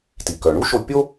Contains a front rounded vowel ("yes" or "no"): yes